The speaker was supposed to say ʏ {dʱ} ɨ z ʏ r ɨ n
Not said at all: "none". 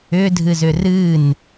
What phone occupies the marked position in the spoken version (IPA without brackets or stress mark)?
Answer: dʱ